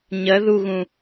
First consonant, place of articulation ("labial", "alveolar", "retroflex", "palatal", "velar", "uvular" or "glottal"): palatal